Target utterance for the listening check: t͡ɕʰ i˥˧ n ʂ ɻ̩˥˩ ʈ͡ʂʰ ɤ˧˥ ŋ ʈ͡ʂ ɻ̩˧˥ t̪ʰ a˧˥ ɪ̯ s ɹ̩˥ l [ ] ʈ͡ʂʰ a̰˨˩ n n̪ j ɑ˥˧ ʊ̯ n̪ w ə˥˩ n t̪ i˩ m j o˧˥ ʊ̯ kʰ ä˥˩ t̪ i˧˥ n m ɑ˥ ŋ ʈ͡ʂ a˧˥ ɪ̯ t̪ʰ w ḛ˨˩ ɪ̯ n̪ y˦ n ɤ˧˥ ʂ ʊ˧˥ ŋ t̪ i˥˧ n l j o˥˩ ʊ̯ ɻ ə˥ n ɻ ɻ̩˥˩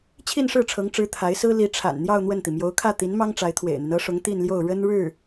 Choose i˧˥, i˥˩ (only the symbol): i˧˥